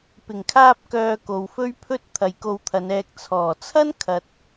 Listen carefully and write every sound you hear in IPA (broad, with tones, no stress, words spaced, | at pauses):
pɪ˨˩ŋkʰaː˧p̚kœː˨ ko˨wfɵ˥ɥpʰɵ˥t̚ t̪ʰɐ˨jko˧wt̪ʰɐ˨˧nɛː˧k̚ t͡sʰɔː˨˩t͡sʰɐ˥n kʰɐ˨t̚